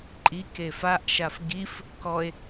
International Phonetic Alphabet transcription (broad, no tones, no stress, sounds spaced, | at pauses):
ǃʼ i k e f a ʔ ʃ a f ɡ i f | k ɔ e̯